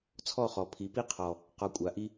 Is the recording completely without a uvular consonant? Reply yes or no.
no